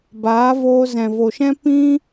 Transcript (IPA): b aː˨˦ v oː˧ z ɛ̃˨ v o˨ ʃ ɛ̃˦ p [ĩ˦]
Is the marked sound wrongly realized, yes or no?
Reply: no